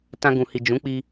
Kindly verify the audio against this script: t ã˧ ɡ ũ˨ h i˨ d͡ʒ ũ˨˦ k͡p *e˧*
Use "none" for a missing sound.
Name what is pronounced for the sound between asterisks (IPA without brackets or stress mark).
i˧